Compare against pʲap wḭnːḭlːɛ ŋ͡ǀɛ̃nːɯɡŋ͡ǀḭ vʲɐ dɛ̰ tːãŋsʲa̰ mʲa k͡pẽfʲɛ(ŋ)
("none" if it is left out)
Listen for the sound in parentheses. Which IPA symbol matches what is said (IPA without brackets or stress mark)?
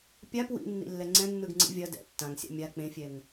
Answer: ŋ